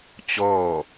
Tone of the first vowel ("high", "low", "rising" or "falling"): falling